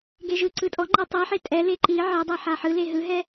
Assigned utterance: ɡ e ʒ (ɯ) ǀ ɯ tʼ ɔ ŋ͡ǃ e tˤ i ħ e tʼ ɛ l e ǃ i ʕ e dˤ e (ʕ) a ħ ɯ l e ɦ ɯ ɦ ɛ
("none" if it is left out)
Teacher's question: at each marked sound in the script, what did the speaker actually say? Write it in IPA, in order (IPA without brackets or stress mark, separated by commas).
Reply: ɯ, ħ